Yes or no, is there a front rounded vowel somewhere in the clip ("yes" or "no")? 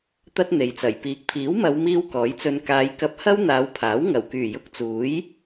yes